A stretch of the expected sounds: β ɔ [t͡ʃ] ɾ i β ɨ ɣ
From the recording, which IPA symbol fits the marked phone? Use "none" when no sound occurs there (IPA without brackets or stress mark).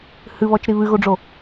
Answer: t͡ʃ